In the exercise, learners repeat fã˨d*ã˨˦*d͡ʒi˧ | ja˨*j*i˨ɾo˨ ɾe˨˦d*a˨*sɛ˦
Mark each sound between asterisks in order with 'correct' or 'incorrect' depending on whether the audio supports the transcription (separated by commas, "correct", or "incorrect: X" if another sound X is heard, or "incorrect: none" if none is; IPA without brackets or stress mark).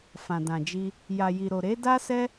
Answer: incorrect: ã˨, correct, incorrect: a˦